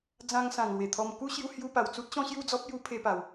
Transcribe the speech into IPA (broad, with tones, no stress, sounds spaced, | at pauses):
d͡z ã˧ ŋ s ã˨˩ ŋ l w e˨˩ t̪ʰ ɔ˧ m k u˦ ɕ j u˧ h j u˧ p a˨˩ w t͡s u˦ t̚ ɕ ɔ̃˦ ɕ j u˥˧ d͡z ɔ˦ p̚ j u˦ pʰ e˧ p a˨˩ w